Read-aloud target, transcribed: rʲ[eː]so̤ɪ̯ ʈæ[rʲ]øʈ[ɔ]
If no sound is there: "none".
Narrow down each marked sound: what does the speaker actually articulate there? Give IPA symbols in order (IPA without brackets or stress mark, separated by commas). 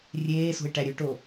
eː, ɾʲ, o